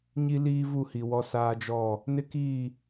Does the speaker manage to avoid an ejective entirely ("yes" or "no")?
yes